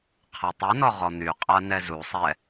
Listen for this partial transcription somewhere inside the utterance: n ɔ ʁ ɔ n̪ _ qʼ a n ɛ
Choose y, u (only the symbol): y